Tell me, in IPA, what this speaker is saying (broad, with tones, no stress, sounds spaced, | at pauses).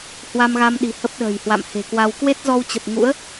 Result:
h w a˧ m ɣ a˧ m ɗ i̤˨˩ h ə˦˥ p̚ ɗ ə̤ː˨˩ j h w a̰˧˨ m h e̤˨˩ k w a˧ w k w e˦˥ t̚ z ɔ˧ w t͡ɕ ə˨˩ p̚ ŋ ṵ˧˥ ə̯